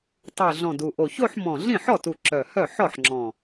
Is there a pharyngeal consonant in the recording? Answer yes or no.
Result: yes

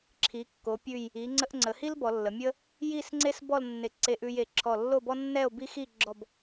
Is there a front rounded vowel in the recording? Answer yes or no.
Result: no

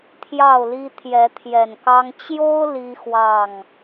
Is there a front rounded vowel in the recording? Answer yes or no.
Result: no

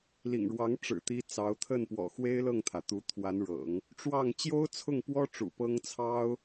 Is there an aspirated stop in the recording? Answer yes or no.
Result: yes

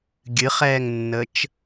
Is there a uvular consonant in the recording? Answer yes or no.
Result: yes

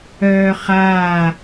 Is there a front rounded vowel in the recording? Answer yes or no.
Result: yes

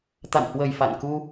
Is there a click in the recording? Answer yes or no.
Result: no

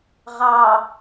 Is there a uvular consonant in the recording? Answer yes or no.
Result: yes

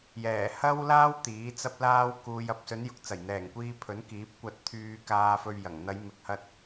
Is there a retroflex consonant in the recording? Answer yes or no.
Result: no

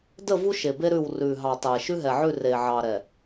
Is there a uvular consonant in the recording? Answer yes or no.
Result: no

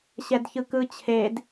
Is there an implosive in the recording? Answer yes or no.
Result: no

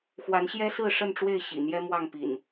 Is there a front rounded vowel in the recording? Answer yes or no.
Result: no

